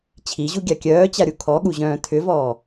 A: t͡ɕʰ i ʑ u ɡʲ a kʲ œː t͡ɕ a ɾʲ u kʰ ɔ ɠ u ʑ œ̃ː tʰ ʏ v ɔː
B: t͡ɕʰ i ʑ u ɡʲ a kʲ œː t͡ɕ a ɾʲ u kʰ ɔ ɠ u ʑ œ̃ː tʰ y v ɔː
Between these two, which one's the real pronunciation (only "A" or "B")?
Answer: A